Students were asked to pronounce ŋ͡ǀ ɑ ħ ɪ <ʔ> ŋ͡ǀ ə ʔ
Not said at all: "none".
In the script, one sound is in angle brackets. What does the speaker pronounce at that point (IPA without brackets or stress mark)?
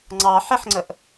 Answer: ħ